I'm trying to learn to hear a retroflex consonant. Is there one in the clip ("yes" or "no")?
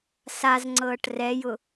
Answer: yes